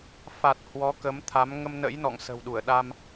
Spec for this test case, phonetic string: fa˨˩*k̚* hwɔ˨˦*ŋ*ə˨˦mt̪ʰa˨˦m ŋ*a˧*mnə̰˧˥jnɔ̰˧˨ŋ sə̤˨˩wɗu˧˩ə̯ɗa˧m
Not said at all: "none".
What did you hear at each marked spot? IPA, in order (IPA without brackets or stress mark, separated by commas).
t̚, k, ə˧